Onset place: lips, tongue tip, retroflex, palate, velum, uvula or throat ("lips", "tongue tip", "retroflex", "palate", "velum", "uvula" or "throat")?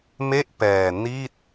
lips